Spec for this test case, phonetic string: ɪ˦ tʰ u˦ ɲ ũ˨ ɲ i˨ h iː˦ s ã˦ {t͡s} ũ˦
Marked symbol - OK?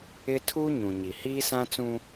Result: yes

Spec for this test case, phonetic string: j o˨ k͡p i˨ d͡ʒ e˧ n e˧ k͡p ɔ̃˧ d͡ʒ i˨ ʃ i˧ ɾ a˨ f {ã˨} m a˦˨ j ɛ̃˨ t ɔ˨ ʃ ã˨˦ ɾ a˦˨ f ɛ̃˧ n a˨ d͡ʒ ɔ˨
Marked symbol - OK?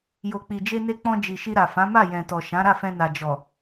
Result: no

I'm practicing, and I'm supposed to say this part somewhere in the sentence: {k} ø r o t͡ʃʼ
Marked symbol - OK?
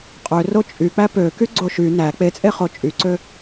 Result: no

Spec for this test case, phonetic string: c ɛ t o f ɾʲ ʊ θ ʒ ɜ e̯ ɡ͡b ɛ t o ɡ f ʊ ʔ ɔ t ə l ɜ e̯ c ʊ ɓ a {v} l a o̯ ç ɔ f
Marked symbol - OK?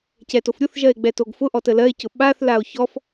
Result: no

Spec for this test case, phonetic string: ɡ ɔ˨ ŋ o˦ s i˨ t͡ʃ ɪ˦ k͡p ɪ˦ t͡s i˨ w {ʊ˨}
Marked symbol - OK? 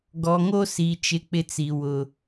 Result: yes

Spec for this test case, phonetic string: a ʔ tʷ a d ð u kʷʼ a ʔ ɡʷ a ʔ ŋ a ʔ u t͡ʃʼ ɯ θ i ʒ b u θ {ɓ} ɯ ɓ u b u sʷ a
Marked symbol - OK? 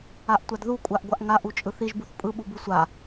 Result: no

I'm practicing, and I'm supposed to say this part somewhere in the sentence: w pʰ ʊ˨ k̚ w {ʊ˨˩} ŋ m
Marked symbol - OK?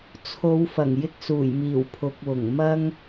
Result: yes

